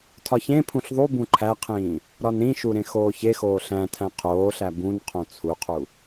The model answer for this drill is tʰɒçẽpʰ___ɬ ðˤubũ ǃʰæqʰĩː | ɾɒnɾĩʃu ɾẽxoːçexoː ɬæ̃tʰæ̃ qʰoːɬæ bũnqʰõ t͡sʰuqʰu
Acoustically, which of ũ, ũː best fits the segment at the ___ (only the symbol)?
ũ